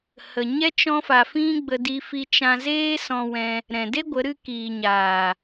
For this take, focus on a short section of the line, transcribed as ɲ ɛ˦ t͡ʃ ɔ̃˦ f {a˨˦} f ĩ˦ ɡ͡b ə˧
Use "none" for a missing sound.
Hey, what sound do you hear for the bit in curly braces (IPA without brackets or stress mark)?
a˧